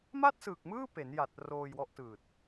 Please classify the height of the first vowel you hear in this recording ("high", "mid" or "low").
low